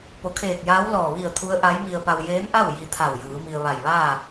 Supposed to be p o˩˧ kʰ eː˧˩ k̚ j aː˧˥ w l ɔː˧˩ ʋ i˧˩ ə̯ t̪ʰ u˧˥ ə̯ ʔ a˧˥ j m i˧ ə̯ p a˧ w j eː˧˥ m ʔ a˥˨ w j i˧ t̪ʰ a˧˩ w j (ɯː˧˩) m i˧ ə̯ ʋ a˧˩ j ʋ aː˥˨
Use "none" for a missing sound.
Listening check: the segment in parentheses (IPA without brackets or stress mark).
ɯː˩˧